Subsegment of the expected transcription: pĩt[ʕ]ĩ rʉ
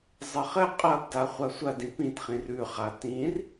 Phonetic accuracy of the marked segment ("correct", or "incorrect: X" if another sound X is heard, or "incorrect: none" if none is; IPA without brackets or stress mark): incorrect: χ